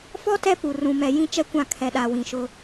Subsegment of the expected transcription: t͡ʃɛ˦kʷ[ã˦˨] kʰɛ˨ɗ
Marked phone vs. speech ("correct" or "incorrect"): correct